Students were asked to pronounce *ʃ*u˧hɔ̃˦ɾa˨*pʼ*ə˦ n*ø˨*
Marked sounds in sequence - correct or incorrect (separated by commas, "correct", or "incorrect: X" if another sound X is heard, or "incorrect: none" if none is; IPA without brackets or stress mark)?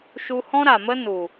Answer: correct, incorrect: m, incorrect: u˨